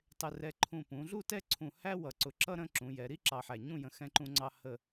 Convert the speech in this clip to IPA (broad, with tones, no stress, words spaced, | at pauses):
tˤɪ˧ rɛ˧ ǃʰũ˧˩pũ˩˧ɮu˥˧tɛ˥˧ ǀʰũ˧˩hæ˥ wʌ˧˩ǀʊ˧˩ǁʌ˥˧ ɾə̃˥˧ǁũ˩˧jɛ˩˧ ɾi˥ ǁɑ˧˩ħæ˧˩ɲũ˥˧jə̃˧˩ xɛ̃˧ǃũ˧ŋ͡ǀɑ˧ hə˧˩